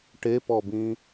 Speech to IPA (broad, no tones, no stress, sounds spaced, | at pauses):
ʈ e p ɔ b ĩ